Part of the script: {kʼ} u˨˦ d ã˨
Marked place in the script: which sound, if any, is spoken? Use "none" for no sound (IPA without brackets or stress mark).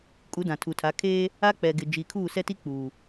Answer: kʼ